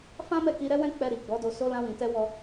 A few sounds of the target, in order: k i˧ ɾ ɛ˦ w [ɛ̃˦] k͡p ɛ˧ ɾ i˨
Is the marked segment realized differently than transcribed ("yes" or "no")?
no